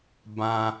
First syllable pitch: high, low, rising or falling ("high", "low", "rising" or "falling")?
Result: high